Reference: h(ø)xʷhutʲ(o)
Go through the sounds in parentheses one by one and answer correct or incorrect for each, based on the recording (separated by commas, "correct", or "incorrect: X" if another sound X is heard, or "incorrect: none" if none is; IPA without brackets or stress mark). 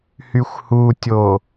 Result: incorrect: y, correct